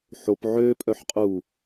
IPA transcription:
ħ o p ʕ ø pʼ œ ħ qʼ u

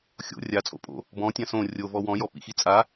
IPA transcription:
xʲ o̰ rʲ a t͡sʼ o̰ pʼ o̰ | b ɔ̃ tʲ ã s õ rʲ o v ɔ w ɔ̃ j ɔ p ḭ x i t͡sʼ a

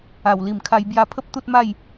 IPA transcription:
a˨˩ w l i˨˩ m kʰ a˧ j b j a˧ pʰ ə˦ p̚ t̪ u˦ t̚ m a˥˧ j

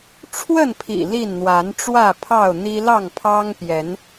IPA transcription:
ʈ͡ʂʰ w ə˥˨ n pʰ ḭ˨˩ l i˥˨ n n̪ w a˨˦ n ʈ͡ʂ w ä˥˨ pʰ ɑ˥˨ ʊ̯ n̪ i˦ l ɑ˥˨ ŋ pʰ ɑ˦ ŋ p j ɛ˨˦ n

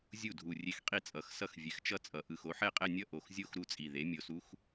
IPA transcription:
zʲ u˥˩ dʱ u˨˩ rʲ e˧˥ x qʼ i˥˩ t͡sʼ ʌ˨˩ x s ʌ˥˩ x vʲ ɛ˩˥ x t͡ʃ ʌ˥˧ t͡sʼ ʌ˩˧ ʔ ɯ˨˩ x o˧˥ ħ ɛ˥˩ qʼ ɛ˥˧ nʲ ʌ˥˧ ʔ o˨˩ x zʲ o˥˧ x ɾ u˥˩ t͡sʼ i˨˩ ð e˩˥ mʲ o˨˩ s u˧˥ x

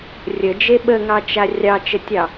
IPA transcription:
rʲ ə d͡ʒ e ɓ ə ŋ ɑ t͡ʃ a rʲ ɑ t͡ʃ ə tʲ ɑ

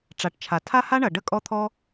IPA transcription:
ʈ͡ʂ a˨ ʈ t͡ʃʰ a˨ tʰ a˦ h a˦ ɳ ɐ˨ ɖ ə˦ kʼ ɔ˦ t̪ʰ ɔ˦

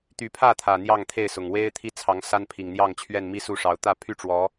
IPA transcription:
t̪ y˨˦ pʰ ä˥˨ t̪ʰ ä˨˩ n̪ j ɑ˥˨ ŋ t̪ʰ e˥˨ ɪ̯ s ʊ˨˩ ŋ w e˦ ɪ̯ t̪ʰ i˦ t͡sʰ ɑ˨˦ ŋ s a˦ n pʰ i˨˩ ŋ n̪ j ɑ˥˨ ŋ t͡ɕʰ ɥ ɛ˥˨ n m i˦ s u˥˨ ʂ ɑ˨˦ ʊ̯ t̪ ä˥˨ pʰ y˥˨ ʈ͡ʂ w ɔ˨˦

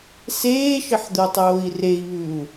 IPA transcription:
s eː ʃ ə ħ d̪ o tˤ oː i̯ r e i̯ β ʉ u̯

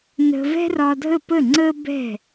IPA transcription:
n ə̤˧ v ɛ̤˥ r ɒ˧ dʱ ə˥˩ p ə˥˩ ŋ͡ǀ ə˥ b ɛ̤˥˩

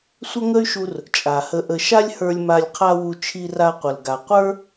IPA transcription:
sʷ ə˦ ŋ ə˦ y̯ ʃ u˧ r | t͡ʃʼ a˨ h ə˧ ʔ ə˧ ʃ a˦ lʲ h ə˞˧ lʲ m a˧ lʲ qʰ a˦ w u˧ t͡ʃʰ i˧ r a˧ qʷ ə˨ l ɡ a˨ qʷ ə˞˦

